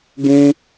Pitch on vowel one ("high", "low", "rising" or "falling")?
high